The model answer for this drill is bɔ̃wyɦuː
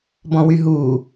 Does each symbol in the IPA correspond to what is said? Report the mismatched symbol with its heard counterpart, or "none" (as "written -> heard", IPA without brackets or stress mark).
none